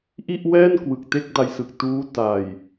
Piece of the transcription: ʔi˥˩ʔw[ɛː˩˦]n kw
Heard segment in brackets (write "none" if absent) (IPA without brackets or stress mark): ɛː˥˩